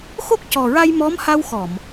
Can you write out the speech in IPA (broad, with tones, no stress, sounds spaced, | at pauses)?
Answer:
x o˦˥ k̚ c ɔ˨˩ ɹ a˧ j m ɔ˧˥ m h a˧ w x ɔ˨˩˨ m